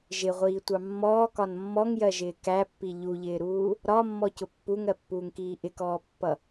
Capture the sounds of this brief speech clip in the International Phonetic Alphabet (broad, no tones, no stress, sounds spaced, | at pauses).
ʒ ɪ ʁʷ iː tʷ ɑ mː ɔː k ɒ n mː ɔ ŋ j ɜ ʒ ɪː k æ pː i ʎ u ʎ ɪː ɾ uː | ɾ ɒ mː ɔ c ʊ pː u ŋ ɜ pː uː ŋ k iː ʔ ɪ k ɔː pː ʌ